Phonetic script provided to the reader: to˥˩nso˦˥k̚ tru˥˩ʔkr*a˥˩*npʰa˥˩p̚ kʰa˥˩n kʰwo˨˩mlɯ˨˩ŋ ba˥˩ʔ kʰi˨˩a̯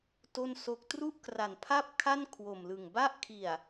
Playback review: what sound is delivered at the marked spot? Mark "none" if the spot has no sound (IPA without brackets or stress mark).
a˨˩